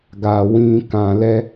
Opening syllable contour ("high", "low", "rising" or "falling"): low